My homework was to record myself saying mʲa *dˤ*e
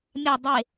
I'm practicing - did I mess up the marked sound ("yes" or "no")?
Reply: no